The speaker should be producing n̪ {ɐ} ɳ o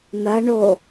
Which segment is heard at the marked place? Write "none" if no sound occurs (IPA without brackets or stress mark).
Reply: ɐ